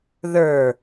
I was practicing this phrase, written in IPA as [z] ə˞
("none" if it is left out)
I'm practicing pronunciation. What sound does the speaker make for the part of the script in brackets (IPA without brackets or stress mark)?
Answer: ð